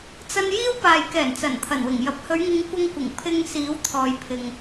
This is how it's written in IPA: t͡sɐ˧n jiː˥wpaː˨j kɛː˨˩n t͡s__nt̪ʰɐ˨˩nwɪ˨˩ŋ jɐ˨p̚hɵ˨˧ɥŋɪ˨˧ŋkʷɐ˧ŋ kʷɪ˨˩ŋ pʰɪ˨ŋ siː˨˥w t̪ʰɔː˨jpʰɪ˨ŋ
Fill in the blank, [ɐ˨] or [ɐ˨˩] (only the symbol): ɐ˨˩